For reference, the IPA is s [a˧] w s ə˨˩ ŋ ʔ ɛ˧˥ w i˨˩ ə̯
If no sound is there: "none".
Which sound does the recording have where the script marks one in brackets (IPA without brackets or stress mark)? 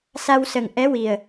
a˧